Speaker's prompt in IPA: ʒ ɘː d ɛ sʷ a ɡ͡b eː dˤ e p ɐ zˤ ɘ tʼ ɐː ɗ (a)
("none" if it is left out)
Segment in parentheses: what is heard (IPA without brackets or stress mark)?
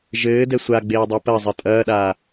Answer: aː